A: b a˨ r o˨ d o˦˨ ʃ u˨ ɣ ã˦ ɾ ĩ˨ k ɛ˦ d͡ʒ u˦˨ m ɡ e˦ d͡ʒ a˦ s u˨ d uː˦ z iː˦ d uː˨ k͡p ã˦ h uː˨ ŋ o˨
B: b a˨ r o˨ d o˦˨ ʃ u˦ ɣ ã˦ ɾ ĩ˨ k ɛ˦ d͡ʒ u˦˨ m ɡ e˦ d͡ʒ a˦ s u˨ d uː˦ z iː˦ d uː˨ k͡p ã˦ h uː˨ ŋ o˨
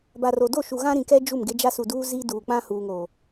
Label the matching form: A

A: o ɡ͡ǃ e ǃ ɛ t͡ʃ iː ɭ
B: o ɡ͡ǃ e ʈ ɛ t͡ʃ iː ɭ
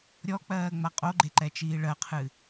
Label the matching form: A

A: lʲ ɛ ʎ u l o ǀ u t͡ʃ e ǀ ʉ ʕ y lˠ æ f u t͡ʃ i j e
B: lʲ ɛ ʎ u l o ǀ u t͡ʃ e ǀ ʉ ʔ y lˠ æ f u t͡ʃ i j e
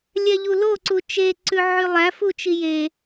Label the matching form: A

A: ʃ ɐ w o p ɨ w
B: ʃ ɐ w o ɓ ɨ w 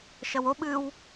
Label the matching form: B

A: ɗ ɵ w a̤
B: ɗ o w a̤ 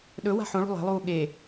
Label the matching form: A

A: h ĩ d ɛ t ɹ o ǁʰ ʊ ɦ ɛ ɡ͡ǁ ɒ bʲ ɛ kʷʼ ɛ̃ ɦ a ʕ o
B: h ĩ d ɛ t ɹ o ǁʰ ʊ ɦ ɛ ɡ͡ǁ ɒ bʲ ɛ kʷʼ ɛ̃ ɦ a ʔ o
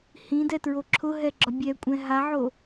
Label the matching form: A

